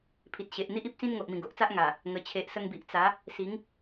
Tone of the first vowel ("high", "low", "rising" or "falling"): low